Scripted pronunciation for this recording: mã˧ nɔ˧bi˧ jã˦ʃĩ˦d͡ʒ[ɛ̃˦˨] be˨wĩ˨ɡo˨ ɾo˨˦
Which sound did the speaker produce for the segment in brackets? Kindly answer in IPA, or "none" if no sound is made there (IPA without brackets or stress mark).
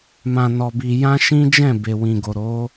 ɛ̃˦˨